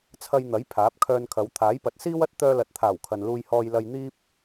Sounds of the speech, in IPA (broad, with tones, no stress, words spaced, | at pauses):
t͡sʰɐ˧jn̪ɐ˨˥j pʰaː˨˥p̚kʰœː˧nkʰɐ˨˧w t̪ʰaː˨˥jpɐ˨˥t̚siː˥w ɐ˥t̚ t̪œː˧lɐ˨t̚t̪ʰaː˨˩w kʰɐ˨nluː˧jhɔː˧j lɐ˧jn̪iː˥p̚